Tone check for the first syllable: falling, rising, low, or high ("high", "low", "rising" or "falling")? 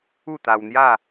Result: falling